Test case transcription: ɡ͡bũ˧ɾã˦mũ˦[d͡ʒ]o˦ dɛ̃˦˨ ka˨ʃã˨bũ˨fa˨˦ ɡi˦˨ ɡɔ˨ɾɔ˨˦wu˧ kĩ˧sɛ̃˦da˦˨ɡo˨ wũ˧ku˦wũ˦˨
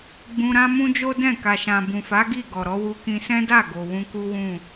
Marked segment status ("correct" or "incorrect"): correct